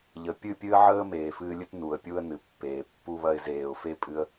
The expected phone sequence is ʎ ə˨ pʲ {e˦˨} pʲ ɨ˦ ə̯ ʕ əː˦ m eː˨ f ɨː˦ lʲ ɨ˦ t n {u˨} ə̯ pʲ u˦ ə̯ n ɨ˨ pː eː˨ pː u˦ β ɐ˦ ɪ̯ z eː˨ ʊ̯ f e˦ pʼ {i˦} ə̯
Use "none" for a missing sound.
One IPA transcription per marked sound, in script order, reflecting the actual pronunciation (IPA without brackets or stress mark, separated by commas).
ɨ˦˨, u˨, ɨ˦